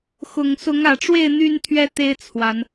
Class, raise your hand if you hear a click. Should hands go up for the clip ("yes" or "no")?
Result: no